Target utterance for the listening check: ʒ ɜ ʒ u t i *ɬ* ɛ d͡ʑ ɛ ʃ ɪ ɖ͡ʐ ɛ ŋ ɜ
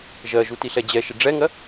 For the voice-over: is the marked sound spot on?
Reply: yes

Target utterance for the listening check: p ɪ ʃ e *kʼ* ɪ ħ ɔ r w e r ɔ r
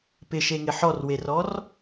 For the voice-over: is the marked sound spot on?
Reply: no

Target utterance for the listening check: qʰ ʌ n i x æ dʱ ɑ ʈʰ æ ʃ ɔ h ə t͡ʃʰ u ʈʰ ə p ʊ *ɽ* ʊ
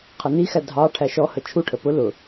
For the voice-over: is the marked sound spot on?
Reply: no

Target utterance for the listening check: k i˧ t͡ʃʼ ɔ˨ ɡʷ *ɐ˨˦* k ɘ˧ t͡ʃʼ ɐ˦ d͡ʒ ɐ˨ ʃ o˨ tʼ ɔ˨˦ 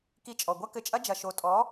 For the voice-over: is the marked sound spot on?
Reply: no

